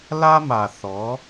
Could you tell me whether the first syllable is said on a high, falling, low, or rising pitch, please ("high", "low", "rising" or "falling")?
high